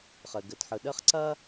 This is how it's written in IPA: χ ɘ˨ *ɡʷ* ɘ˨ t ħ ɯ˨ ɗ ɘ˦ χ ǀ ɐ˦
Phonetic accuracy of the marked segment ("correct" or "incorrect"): incorrect